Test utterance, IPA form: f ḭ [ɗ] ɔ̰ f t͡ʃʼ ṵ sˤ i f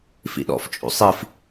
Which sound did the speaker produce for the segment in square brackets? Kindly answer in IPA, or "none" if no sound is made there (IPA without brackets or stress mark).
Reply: ɗ